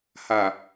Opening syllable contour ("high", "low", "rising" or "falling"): low